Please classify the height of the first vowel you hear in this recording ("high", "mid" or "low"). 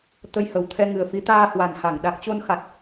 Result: mid